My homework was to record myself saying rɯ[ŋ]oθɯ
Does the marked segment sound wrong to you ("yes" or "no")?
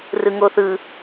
no